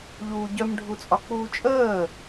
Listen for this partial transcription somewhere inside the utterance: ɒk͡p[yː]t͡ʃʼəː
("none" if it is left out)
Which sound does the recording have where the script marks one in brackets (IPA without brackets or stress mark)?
uː